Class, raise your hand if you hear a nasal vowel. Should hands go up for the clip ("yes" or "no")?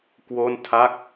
no